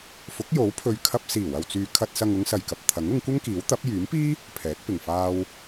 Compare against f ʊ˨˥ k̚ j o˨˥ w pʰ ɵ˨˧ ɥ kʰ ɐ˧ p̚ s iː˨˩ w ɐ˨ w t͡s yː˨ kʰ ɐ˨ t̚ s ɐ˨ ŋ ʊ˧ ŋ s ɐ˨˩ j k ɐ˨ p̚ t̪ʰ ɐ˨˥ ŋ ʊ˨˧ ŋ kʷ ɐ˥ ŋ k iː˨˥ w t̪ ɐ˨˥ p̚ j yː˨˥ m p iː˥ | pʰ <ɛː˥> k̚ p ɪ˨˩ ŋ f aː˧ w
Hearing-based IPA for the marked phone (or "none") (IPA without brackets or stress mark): ɛː˨˥